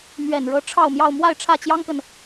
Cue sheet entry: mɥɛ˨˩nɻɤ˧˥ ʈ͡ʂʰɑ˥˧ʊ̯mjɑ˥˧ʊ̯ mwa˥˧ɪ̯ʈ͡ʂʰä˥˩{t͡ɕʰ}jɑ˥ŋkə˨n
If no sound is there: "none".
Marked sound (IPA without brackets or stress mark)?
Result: t͡ɕ